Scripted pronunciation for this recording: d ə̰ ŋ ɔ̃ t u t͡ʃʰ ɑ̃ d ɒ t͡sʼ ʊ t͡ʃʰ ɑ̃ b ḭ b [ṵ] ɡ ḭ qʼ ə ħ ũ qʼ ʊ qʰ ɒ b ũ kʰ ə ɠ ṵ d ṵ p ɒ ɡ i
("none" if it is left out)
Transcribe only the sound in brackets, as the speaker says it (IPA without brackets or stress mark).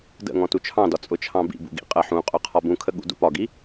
ṵ